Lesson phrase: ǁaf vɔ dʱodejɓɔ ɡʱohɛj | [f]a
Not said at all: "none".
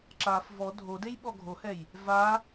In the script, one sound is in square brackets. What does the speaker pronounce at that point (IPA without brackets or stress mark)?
v